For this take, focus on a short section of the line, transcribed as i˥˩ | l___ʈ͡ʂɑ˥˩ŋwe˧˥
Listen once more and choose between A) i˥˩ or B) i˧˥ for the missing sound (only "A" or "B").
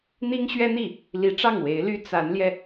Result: B